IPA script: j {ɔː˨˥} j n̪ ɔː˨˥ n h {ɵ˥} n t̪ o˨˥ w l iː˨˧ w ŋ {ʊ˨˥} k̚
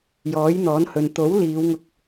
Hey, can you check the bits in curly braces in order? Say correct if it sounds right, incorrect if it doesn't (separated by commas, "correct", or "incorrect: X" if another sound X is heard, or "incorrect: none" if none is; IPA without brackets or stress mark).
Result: correct, incorrect: ɵ˨, incorrect: ʊ˧